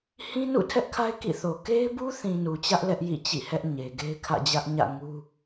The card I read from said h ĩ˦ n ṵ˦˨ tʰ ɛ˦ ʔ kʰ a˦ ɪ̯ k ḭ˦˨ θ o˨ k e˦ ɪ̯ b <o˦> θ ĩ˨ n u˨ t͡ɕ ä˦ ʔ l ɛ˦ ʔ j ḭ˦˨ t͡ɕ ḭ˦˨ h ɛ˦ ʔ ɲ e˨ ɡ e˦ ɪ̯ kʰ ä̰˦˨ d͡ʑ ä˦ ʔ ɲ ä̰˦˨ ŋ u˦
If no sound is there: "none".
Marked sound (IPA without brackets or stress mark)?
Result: u˦